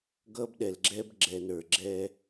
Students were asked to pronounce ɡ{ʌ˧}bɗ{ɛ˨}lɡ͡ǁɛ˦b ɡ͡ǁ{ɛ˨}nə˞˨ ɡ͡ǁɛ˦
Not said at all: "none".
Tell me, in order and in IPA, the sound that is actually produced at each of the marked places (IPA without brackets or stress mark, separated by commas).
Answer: ʌ˦, ɛ˨, ɛ˨